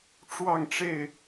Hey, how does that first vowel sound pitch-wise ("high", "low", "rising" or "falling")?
falling